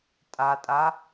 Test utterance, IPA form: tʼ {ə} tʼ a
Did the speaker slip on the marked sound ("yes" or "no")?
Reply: yes